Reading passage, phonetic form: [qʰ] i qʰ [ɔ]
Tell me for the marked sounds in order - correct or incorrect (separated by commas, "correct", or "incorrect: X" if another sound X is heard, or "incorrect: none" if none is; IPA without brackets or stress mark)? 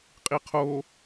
incorrect: qʼ, incorrect: o